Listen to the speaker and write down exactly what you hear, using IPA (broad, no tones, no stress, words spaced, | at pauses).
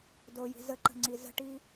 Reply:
doji̤ zəǃə̤ŋ͡ǀi zə̤ʈi